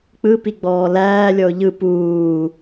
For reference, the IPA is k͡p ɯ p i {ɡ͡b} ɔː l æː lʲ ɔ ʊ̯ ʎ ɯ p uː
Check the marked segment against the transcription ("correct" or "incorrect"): correct